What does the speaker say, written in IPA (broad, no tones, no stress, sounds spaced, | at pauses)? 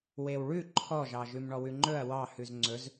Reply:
w e w ɭ ʉ ǃʰ ɔ ʒ ɑ ʒ ʉ m ɳ ɔ w ʉ ŋ͡ǃ ɵ ɐ̯ w ɑ h ʉ z ŋ͡ǀ ɵ z